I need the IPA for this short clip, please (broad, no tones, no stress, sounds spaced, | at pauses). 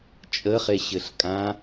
t͡ʃʼ ə χ e ɕ ɘ ɬ kʼ ã